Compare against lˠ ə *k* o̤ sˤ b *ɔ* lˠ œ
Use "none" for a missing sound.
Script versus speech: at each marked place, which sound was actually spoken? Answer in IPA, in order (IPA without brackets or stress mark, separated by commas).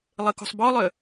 k, ɔ